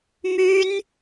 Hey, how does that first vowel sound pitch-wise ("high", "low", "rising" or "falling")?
high